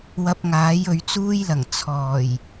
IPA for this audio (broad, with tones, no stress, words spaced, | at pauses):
wɐ˧p̚ŋaː˨˥j ɵ˨˧ɥt͡suː˥jlɐ˨˩ŋ t͡sʰɔː˨˩j